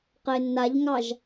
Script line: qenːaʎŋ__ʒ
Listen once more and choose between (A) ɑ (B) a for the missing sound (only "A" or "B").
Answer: A